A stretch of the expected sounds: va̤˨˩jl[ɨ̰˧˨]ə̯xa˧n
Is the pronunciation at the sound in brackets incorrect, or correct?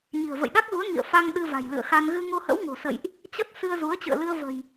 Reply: correct